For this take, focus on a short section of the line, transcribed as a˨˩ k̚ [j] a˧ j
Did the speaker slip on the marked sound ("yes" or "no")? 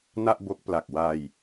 yes